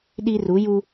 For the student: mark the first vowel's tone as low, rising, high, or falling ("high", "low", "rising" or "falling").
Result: high